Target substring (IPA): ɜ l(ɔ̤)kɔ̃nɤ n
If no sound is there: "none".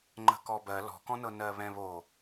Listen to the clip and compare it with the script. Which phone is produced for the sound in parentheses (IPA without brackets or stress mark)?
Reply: ɔ̤